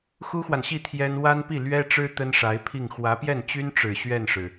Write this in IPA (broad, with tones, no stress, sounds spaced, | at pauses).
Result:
x u˥ x w a˨ n ɕ i˥˩ t̪ʰ j ɛ˥ n w a˥ n p i˥˩ l ɥ ɛ˥ ʈ͡ʂ ɻ̩˥ t̪ ə˥ n ʂ a˧˥ ɪ̯ pʰ i˥˩ ŋ x w ä˧˥ p j ɛ˥˩ n t͡ɕ y˥ n ʈ͡ʂ ɻ̩˨˩ ɕ ɥ ɛ˥˩ n ʂ ɻ̩˩